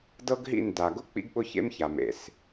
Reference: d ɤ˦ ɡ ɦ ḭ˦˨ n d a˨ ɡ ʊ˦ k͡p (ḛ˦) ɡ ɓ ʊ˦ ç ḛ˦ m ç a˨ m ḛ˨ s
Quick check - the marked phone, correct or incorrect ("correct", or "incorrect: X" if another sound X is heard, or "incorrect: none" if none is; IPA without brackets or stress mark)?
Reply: incorrect: ḭ˦